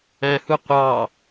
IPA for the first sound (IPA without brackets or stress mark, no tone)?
æ̃